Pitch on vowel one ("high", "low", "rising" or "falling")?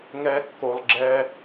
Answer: high